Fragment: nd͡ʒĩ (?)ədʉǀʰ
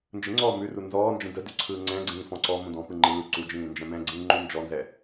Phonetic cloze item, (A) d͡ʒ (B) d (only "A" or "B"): B